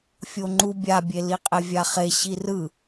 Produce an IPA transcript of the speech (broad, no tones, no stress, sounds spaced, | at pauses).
fʲ o ŋ͡ǃ u bʲ a bʲ e l i qʼ e vʲ a χ e ɕ i r ɯ